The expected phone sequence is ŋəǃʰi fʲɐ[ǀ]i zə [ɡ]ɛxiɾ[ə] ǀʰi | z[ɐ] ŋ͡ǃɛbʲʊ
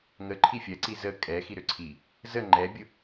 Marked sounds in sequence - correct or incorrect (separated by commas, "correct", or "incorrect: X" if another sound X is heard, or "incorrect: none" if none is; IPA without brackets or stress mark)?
correct, incorrect: kʼ, incorrect: ø, incorrect: ə